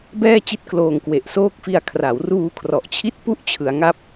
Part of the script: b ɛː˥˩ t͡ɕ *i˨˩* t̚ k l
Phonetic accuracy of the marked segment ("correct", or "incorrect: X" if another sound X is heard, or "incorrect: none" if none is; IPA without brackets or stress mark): incorrect: i˥˩